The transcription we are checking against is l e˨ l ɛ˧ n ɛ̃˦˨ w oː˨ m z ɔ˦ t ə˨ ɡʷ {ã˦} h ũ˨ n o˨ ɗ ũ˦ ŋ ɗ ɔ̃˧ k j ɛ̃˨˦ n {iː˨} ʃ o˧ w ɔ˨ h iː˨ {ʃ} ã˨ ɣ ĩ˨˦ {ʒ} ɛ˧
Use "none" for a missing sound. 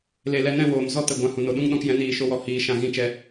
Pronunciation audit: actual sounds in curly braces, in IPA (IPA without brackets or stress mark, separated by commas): ã˧, iː˨, ʃ, t͡ʃ